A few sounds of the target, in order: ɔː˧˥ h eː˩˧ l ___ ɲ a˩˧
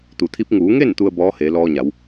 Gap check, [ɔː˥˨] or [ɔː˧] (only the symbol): ɔː˧